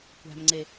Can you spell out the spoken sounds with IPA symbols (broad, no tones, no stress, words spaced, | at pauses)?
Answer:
kʷæ̤mŋ͡ǀe